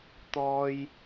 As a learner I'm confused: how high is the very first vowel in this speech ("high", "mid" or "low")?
mid